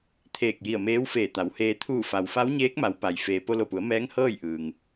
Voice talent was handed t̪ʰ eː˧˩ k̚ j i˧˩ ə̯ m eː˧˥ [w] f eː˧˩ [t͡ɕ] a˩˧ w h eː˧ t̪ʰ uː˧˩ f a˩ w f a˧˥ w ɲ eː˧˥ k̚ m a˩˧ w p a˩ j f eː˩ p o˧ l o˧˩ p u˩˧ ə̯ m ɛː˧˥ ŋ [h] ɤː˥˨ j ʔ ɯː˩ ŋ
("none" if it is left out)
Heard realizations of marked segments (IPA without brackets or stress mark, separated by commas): w, t̪, h